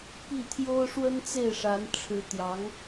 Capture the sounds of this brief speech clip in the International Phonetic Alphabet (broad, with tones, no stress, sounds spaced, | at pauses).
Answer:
p i˥˩ t̪ʰ j o˥ ʊ̯ ʂ w ə˥ n t͡s e˥˩ ɪ̯ ʂ a˧˥ n ʈ͡ʂʰ ɻ̩˧˥ t̪ j ɑ˧˥ ŋ